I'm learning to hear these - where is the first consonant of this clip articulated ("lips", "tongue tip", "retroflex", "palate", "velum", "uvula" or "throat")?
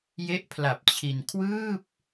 palate